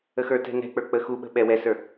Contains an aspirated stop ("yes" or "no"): no